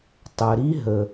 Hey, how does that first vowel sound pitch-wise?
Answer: low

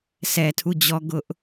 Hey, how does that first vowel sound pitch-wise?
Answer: low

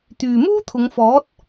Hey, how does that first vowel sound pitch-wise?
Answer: low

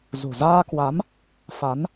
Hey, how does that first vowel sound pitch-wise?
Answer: low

